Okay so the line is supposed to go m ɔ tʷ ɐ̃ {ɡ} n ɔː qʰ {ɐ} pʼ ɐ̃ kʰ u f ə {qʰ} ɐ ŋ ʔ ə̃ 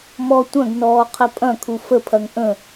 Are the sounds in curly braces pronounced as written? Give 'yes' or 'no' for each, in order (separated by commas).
yes, yes, no